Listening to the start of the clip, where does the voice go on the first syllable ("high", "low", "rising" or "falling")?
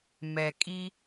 low